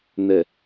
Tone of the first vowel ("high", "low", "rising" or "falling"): low